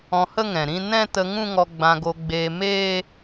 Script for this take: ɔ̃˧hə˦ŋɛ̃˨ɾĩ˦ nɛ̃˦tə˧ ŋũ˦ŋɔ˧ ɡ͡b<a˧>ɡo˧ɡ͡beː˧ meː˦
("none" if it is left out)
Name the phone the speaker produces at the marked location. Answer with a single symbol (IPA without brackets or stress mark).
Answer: ã˧